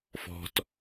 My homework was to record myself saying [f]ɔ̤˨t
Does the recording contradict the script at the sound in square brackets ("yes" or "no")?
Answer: no